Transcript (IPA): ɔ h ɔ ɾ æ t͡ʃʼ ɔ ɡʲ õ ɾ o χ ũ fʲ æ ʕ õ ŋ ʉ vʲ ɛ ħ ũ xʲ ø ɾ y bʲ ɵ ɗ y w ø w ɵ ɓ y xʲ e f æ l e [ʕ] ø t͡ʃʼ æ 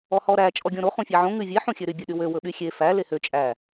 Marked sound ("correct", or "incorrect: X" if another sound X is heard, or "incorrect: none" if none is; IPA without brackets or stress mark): incorrect: h